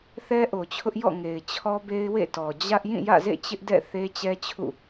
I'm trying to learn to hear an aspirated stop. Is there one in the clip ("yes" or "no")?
yes